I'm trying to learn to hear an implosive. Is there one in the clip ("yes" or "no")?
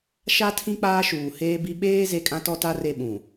yes